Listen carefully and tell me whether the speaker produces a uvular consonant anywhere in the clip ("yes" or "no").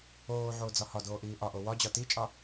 no